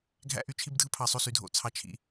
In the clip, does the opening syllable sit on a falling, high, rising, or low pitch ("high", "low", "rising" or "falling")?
high